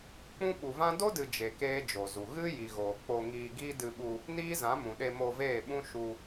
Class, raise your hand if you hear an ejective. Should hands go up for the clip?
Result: no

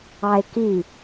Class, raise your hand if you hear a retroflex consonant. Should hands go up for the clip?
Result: no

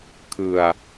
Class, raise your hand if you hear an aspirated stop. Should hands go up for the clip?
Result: yes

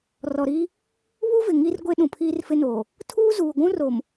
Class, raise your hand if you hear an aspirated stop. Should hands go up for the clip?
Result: yes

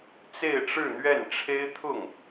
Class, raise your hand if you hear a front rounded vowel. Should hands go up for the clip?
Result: no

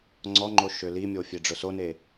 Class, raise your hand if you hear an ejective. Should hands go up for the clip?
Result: no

